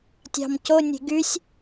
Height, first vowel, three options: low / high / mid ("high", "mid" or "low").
low